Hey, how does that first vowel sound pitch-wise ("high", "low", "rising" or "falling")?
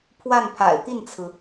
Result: falling